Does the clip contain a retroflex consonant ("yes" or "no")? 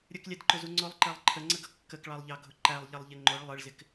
yes